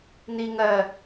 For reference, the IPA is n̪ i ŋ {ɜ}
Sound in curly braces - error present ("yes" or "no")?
no